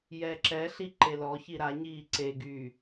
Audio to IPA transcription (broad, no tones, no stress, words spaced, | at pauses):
jɛǁɛɬi ǃelɔçi ɾa ɲiːǀeɡyː